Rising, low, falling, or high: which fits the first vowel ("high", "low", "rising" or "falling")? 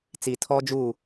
low